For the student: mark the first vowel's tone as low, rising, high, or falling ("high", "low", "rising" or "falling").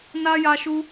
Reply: high